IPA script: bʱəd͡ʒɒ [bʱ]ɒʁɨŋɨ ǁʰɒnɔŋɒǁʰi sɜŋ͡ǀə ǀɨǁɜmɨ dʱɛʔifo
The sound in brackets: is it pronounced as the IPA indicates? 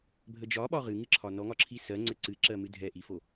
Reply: no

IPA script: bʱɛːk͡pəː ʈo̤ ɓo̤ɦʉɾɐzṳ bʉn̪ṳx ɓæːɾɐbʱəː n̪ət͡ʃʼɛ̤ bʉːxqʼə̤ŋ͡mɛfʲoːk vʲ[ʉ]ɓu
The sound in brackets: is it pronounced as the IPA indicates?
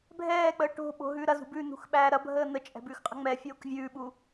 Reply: no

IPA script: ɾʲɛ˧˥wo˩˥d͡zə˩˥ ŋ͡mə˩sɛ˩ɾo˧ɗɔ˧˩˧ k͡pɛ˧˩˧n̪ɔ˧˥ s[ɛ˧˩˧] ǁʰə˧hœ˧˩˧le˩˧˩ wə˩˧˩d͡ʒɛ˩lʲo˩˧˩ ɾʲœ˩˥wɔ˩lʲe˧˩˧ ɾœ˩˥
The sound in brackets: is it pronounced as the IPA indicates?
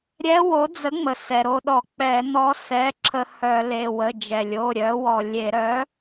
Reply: no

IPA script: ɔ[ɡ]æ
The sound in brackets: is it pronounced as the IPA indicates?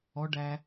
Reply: no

